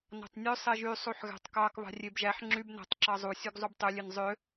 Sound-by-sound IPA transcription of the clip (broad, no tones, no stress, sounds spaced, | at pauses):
n ɑ̤ tˤ nʲ ø sˤ e ʒ y sˤ u ħ ɣ æ̤ tˤ k ɑ k β ɑ̤ rʲ e b ʒ æ ħ ŋ͡ǁ y b n æ̤ tˤ ǁ ɑ zˤ u sʲ u ɡ zˤ u b tˤ ø lʲ e n zˤ ø